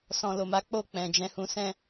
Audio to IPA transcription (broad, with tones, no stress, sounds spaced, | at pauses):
s ɔ̃˨ l o˨ m a˨˦ k͡p o˦˨ k͡p ɛ̃˨ d͡ʒ ɛ̃˧ h ũ˧ s ɛ̃˦